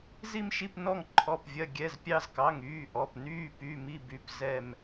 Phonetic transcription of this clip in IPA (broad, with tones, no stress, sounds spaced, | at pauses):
z i˦˨ m ʃ i˦˨ p n ɔ˦˨ ŋ ǃʰ ɔ˩˧˩ p vʲ ɐ˩˧˩ ɡʲ ɛ˩˧˩ z pʲ ɑ˦˨ z k ɑ˩˧˩ ŋ yː˩˧˩ ʔ ɔ˩˧˩ p n yː˦˨ p y˩˧˩ m i˦˨ b y˩˧˩ p z ɛ˦˨ m